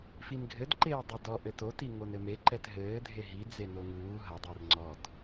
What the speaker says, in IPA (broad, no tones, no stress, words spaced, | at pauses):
finɡʱɘdǃeːdˤɛ dɔ ʔɘtoti ŋonɘme ǃɛtɦɘːdʱe ɦid͡ze noŋuː ɦɐdˤer ŋ͡ǀɔd